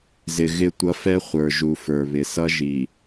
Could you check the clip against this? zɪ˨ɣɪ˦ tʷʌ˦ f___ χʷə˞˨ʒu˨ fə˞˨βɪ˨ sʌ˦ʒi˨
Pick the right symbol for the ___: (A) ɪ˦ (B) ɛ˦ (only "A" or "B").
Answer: B